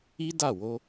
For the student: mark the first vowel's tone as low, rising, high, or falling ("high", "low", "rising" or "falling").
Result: high